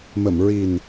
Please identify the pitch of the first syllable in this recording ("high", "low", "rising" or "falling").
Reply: low